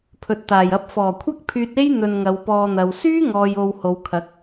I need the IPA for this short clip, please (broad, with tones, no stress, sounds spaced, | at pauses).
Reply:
pʰ ɵ˨ t̚ t̪ aː˨˩ j ɐ˧ p̚ f ɔː˨˩ kʷʰ ɐ˥ k̚ pʰ yː˧ t̚ e˥ j n̪ ɵ˧ n ŋ ɐ˨˧ w p ɔː˧ n̪ ɐ˨ w s yː˥ ŋ ɔː˨ j o˧ w h o˨˧ w kʰ ɐ˨˥ k̚